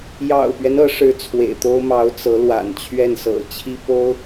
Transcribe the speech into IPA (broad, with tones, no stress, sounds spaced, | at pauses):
j ɑ̰˨˩ ʊ̯ p ɥ ɛ˦ n ɤ˧˥ ʂ ɻ̩˧˥ t͡sʰ w ḛ˨˩ ɪ̯ t̪ o˥ ʊ̯ m ɑ˧˥ ʊ̯ t͡s ɤ˧˥ l w a̰˨˩ n t͡ɕʰ ɥ ɛ˥˩ n s ɤ̰˨˩ t͡ɕʰ i˥ p o˥ ʊ̯